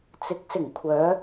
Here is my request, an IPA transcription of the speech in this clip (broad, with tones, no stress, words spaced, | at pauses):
t͡sɪ˨˥k̚sɪ˨˩ŋkʷʰœː˨˧